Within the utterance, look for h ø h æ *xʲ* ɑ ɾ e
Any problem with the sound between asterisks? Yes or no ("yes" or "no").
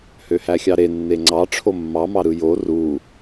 no